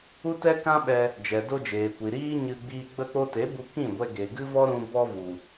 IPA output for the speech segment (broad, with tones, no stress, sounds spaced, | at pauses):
u˦ t ɛ˦ k ã˦ ɓ ɛ˧ | d͡ʒ ɛ˨ d o˧ d͡ʒ eː˨ kʷ i˨ ɾ iː˦ ɲ ɨ˧ ɡ͡b iː˧ ɡ͡b ə˧ k͡p o˧ t e˨˦ b u˧ k ĩ˦˨ ɡʷ ɛ˧ ɡ e˨ ɡ ɨ˦ v ɔ˦ ɾ ũ˧ b ɔ˧ v u˨